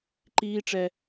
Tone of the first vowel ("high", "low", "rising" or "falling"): high